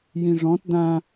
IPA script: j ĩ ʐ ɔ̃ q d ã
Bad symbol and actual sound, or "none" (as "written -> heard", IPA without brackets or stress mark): q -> t